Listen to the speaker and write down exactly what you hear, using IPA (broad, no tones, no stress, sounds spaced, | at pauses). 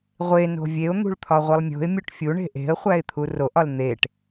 ʁʷ e n o̤ vʲ e ʊ̯ n̪ ṳ ɭ t̪ʰ ɒ ʁʷ i lˠ mʲ o̤ ɪ̯ mʲ u ʈ fʲ u ɳ e̤ ʔ e̤ ə̯ χʷ æ ɪ̯ t̪ʰ u r o ʔ ɒ l n̪ e ʈ